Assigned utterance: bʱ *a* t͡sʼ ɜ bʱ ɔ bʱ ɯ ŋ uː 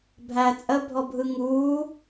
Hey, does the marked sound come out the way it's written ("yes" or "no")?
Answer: no